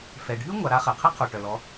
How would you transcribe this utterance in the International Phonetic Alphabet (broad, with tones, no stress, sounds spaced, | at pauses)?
f ɛ˩ ɖʱ y˥ ŋʷ a˩˧ ɾ a˧ χ ɛ˩ qʰ ɛ˥ qʰ o˩ ʈ œ˩ l ɔ˩˧